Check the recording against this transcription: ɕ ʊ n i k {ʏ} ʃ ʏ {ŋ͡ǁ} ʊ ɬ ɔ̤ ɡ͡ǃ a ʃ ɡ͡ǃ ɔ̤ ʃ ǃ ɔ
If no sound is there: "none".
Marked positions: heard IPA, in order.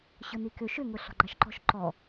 ʏ, ŋ

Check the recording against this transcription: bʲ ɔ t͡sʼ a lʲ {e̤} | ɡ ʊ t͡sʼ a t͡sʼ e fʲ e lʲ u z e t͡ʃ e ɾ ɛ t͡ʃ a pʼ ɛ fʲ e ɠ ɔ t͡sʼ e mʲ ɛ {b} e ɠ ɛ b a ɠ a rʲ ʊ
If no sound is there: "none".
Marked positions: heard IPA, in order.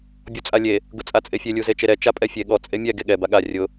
e, ɡ

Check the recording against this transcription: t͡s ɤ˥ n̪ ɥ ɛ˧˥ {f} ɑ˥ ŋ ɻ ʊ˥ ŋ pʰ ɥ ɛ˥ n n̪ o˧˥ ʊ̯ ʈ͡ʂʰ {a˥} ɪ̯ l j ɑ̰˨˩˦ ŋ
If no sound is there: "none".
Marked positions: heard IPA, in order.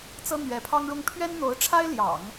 pʰ, a˥

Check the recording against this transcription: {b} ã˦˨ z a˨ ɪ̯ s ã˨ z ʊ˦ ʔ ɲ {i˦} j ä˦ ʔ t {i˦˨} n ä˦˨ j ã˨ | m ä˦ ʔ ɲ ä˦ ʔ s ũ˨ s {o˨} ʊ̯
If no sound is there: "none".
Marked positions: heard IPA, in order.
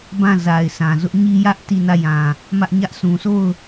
b, i˦, i˦˨, o˦˨

